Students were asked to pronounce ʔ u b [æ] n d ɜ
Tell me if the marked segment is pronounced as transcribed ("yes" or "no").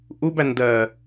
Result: yes